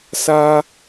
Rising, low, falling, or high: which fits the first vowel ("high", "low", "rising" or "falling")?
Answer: high